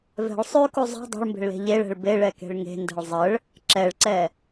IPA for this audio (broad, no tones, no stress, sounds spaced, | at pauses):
v ɛ̤ ɭ sˤ ʉ k u zˤ ɛ̤ dˤ ɛ̤ ɭ m b e̤ ɭ l e̤ ʎ e ɭ ɛ̤ ɭ b e ɭ ɛ k e̤ ɭ ŋ e̤ n d ɛ̤ ɭ zˤ ə ɭ | ǁ ɛ ɭ ǀ ɛ